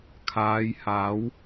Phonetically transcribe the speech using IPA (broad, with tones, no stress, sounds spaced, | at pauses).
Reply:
kʰ aː˨˧ j h aː˨˥ w